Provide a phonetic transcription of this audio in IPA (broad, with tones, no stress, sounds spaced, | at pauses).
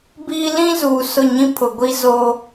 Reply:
b iː˦ l ĩ˦ z uː˨ s ʊ˦˨ ɲ ĩ˦ pʰ ʊ˨ ɡʷ i˦ z o˦